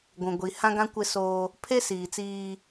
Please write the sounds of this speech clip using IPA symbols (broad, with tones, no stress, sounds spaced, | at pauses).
ɡʷ ũ˨ ɡʷ i˨ h ã˦ ɡ ã˦ kʷ ɪ˦ s oː˦ | pʰ e˦ s iː˨ t͡s iː˦